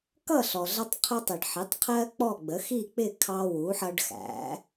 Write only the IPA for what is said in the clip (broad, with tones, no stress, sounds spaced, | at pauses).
k ʌ˥˨ ɬ ɔ˩ ɮ ʌ˦ tˤ qʰ ʊ˦ tˤ i˩ ɖ ħ i˩˥ tˤ qʰ ɜ˦ k͡p ɔ˥˨ ɡ͡b ə˩˥ x i˥˨ k͡p ɪ˥˨ kʰ ɑ˦ w u˩˥ ħ ʌ˦ ɖ x æ̰˩˥